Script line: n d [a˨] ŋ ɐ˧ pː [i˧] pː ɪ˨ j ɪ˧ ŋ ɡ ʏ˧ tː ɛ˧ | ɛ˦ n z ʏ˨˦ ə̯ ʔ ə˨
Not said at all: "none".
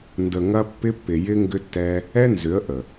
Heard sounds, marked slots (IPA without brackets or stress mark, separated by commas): ə˨, ɪ˧